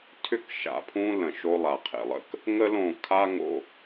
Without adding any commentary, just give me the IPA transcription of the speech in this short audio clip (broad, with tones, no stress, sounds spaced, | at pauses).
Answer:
tʰ ʏ˦˨ k ʃ a̰˨ pʰ ũ˦ l ə̃˨ ʃ o˦ lˠ a˨ qʰ ḛ˨ lˠ ə̰˦ k | ŋ ə˦ l õ˦˨ kʰ a˦ ŋ o̰˨